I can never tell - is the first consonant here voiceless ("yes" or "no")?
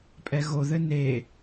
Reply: yes